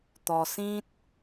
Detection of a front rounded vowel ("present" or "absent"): absent